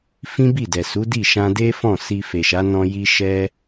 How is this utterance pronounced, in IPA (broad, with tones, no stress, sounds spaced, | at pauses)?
f ĩ˦ b i˦˨ d ɛ˨ s u˨˦ d i˦˨ ʃ ã˧ d e˦ f ɔ̃˦˨ s i˧ f e˨ ʃ a˨˦ n ɔ̃˧ j i˧ ʃ ɛ˧